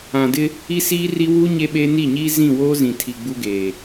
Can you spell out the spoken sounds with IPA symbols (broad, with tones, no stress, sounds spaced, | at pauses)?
ã˨ d ɪ˦ | i˦ s iː˦ r i˦ w uː˦ ɲ e˦ ɓ eː˦ n i˦˨ ɲ iː˦ z ĩ˦˨ w oː˦ z ĩ˨ tʰ i˨ ɡ͡b u˦ ɡ eː˨